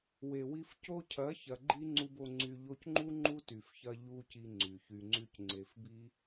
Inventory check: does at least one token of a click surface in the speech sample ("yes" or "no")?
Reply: yes